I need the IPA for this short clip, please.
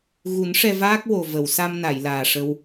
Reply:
ɣ u˨˩˦ n ʂ ɛ˧ v aː˦˥ k̚ w o˨˩ v ə˨˩˨ w s a˧ m n a˨˩˨ j l aː˨˩ ʂ ə˧ w

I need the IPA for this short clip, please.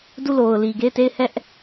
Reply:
d u˦˨ l o˨ ʊ̯ l i˨ ɡ e˦˨ ɪ̯ t e˦˨ ɪ̯ h ɛ˦ ʔ

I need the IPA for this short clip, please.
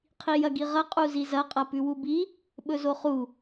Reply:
qʰ i j ɐ ɡ i ʁ ɐ qʼ u z i z ɐ qʼ ɐ p ʉ w u b i | ɓ ɵ z o χ u

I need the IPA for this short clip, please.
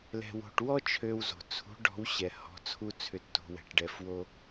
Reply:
l ɛ̤˧ w o̤˧ ʈ w ɔ˥ t͡ʃʰ ø˧ w z o̤˩ t͡sʰ ṳ˧˥ ɖ ɔ̤˧˥ w ɕ ɛ˧ h ɔ̤˧˥ t͡sʰ u˥ t͡sʰ ʏ˧˥ tː o̤˧ w ɛ̤˩˧ ʈ ɖ ɛ˧ f w o˥

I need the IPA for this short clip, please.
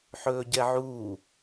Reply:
ħ ɵː ɟ ɛ ʕ uː

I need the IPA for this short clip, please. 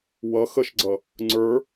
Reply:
w ʌ x ə ʃ ɡ͡ǀ ʌ | ŋ͡ǀ ə˞

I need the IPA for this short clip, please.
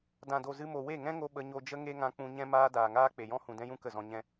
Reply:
d ã˨ d o˨ z ɨ˧ m o˨ w e˦˨ ŋ ɛ̃˦ ŋ o˧ ɓ ə˧ ɲ o˧ d͡ʒ ə˦ ŋ e˦ ŋ ã˧ k͡p ũ˧ ɲ ɛ̃˦ m aː˦ d aː˨ ŋ aː˦ k͡p e˨ j ɔ̃˦ h ũ˨ d ɛ̃˦ j ũ˦ k ə˦˨ z ɔ̃˧ ɲ ɛ̃˧

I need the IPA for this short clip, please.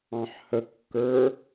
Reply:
ɑ̃ ħ h ə kː ə˞

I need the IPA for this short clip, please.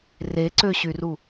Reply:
r e ǀ ø ɕ y r u

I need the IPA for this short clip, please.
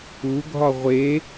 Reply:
u ɡʱ ɒ ʁʷ e

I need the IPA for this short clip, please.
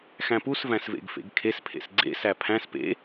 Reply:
x æ̃ p u s v æ̃ s v ḛ ɡ f ḛ ɡ kʰ e s pʰ ḛ s ɡ͡ǀ ḛ s æ pʰ æ̃ s p ḛ

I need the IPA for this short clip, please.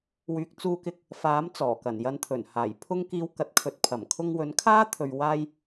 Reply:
w yː˨ k̚ t͡s uː˧ k ɪ˧ k̚ | f aː˨˥ m t͡s ɔː˨˩ k ɐ˨˩ n j ɐ˨ n t̪ʰ ɵ˨˩ n h aː˨˩ j pʰ ʊ˧ ŋ k iː˨˧ w k ɐ˨ t̚ kʰ ɵ˨ t̚ pʰ ɐ˨˩ m kʰ ʊ˧ ŋ w ɵ˨˥ n kʰ aː˥ t̪ʰ ɵ˨ ɥ w aː˧ j

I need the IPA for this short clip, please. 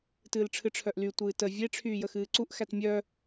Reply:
t ɨː l ʈ͡ʂʰ ɨ ʈ͡ʂʰ œ ʔ l y tʷ ɨː t ə vʲ e ʈ͡ʂʰ yː j ə x ɨː ǀ u ʔ x æ t mʲ œ

